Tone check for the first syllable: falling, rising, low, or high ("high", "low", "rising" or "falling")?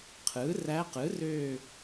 rising